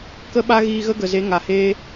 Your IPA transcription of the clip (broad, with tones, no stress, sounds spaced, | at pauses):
k ə˦ ɓ a˦ ɣ iː˧ ɣ ə˦ ɡ ə˨ z e˨˦ ŋ a˨ h eː˦